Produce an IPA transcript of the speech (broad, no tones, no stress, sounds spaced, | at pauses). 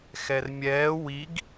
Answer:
x ɛ r mʲ ɛː w i ɡ